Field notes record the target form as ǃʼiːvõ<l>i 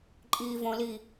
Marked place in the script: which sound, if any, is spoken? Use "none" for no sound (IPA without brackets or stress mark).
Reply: l